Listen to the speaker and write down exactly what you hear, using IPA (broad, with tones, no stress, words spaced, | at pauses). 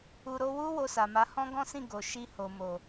u˧ ɾo˧wu˦ wo˧sa˨ma˨˦ hɔ̃˦ɡɔ̃˦sĩ˦˨ ɡo˨ ʃi˧ ho˨mo˨